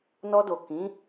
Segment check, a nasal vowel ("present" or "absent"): present